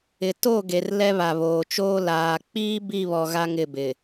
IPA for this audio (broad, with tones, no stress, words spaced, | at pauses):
ɪ˨to˦˨ ɡe˨r lɛ˦βa˨βoː˨t͡ʃoː˦ laː˨k͡piː˦ bi˦˨βɔ˨ ɣa˦ŋɪ˦˨bɪ˨